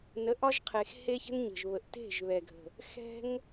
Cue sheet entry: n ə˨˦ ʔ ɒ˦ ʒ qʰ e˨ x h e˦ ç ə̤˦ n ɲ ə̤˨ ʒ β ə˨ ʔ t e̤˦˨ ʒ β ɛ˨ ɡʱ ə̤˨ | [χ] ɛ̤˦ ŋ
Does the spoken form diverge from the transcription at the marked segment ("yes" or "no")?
yes